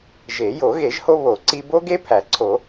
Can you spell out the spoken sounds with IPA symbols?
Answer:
ʒe˨˩˦ jo˨˩˦ɣe˨˩˦ʒho˦ βo˨˩˦ǀi˦ bo˦ɡe˦ pʰæ˨˩˦ǀʰo˨˩˦

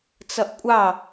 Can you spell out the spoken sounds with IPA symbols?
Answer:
t͡sʌʔkʷʼɑ

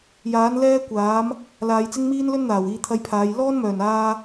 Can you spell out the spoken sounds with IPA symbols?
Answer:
jaː˨˥n lɛː˥kʷaː˨˥m | laː˨˧jt͡sɪ˥ŋmiː˥nlɵ˥n n̪aː˨˩wiː˧t̪ʰɐ˧jpʰaː˨˧j lɔː˥nmœː˨˩naː˧

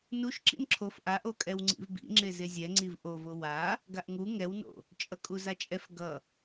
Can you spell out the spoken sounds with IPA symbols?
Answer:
nuʃ ǁḭnǁʰof ʔaʔokʼɛw ŋ͡ǀḭvbḭ ŋ͡ǁezezʲɛ ŋ͡ǀivʔovo wa | ɡaʔŋu ŋɛwno̰ | t͡ʃʼʌkʼuzat͡ʃʼɛf ɡʌ

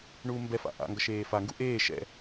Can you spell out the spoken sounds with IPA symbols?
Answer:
ɳuːmbɛ fa̰ʔa̰ ŋɡʌʃeːfa ŋɡuʔeː ʃɛ̰

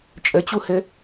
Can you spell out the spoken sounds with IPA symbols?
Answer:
t͡ʃʼət͡ɕuhɘ

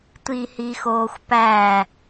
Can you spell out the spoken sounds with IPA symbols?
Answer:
tʷihixoːxʷpæ

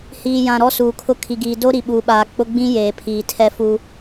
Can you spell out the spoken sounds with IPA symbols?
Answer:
hiː˨jã˨ ɾɔ˦suː˨kʰʊ˦ kʰi˨ɡiː˨ do˦ ɾi˨ɓuː˨ɓaː˨ k͡pʊ˦ɡ͡bĩ˦ jeː˨pʰiː˨tʰɛ˦fu˦

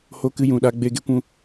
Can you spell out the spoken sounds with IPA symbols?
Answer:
ho˧kɨ˧ jũ˨ɗa˧ɡ͡be˧ɡe˦ kʷũ˧

